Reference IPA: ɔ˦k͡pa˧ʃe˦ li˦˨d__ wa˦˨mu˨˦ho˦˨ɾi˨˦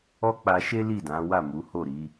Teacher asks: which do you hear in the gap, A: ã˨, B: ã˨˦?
B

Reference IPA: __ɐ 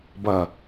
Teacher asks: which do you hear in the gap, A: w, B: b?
B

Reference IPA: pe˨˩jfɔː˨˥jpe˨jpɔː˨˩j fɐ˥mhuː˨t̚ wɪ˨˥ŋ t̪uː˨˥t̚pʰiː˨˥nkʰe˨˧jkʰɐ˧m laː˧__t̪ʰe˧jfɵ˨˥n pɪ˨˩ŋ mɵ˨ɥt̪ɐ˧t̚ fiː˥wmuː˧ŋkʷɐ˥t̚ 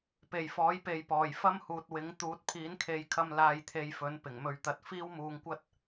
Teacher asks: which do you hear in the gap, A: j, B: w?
A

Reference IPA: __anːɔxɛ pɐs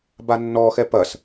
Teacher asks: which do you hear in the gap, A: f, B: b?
B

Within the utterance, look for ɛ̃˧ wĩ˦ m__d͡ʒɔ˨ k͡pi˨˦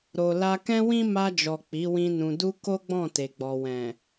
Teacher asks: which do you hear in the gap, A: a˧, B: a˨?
A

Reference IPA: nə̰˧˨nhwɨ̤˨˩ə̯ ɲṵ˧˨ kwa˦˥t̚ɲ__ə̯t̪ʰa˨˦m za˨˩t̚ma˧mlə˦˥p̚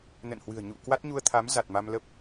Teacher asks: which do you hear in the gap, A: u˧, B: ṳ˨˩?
A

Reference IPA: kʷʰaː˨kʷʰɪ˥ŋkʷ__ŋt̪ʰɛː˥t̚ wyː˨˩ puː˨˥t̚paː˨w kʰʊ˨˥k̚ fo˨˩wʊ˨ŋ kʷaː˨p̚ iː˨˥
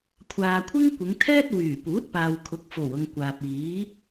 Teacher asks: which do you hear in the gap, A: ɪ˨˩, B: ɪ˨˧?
B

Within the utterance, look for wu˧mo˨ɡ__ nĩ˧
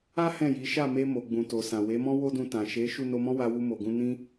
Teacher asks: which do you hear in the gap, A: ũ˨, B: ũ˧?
B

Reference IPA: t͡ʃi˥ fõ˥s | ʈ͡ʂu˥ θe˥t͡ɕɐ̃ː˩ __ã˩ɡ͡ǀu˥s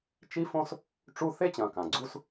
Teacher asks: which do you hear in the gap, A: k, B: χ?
A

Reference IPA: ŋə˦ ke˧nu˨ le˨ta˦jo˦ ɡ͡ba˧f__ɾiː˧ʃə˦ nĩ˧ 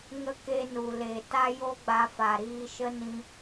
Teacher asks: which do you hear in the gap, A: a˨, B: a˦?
A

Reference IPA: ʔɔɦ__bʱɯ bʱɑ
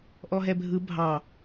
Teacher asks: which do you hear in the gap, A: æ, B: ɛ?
B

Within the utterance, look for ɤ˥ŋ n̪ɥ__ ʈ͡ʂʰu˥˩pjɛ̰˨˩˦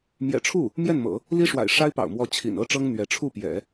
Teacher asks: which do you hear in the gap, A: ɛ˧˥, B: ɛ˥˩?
A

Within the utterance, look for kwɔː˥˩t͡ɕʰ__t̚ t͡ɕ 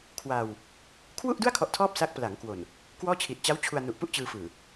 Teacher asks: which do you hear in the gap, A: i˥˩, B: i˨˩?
B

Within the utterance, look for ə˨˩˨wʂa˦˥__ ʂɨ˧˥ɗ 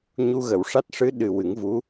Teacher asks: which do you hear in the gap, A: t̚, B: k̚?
A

